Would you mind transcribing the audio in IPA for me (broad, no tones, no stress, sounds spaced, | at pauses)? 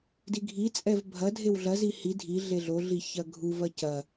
d i ɡʱ i t͡sʼ ɛ v bʱ ɐ dʱ e w ɮ ɐ z i h i dʱ i ɮ e ɮ o ɮ i ç ɐ ɡʱ u v ɐ c ɐ